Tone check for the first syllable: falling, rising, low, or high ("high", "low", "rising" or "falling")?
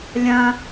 high